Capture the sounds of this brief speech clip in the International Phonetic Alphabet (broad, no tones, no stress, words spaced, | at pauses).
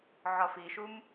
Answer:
ʕɒfiʃum